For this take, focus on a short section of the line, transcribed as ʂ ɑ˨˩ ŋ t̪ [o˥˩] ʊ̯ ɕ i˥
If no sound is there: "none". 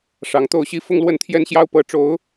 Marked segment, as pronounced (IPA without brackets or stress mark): o˥˩